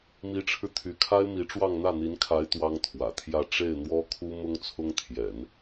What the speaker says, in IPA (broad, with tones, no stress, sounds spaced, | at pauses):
m i˧˥ ʈ͡ʂʰ ɻ̩˧ t̪ʰ y˧˥ kʰ a˥ ɪ̯ m i˧˥ ʈ͡ʂ w ɑ˥˧ ŋ n̪ ä˥˩ n̪ i˧˥ n kʰ a˧˥ ɪ̯ t̪ w ɑ˥ ŋ t̪ʰ w ä̰˨˩ t̪ʰ j ä˥˧ ʈ͡ʂ e˥˩ ɪ̯ n̪ w ɔ˥ kʰ u˥ m ʊ˥ ŋ t͡sʰ ʊ˥ ŋ t̪ʰ j ɛ̰˨˩˦ n